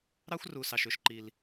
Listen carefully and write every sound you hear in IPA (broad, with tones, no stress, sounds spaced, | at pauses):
ɾ ɑ˦ xʷ r u˨ s ɑ˨ ʃ ø˨ ʃ ǃ i˦ l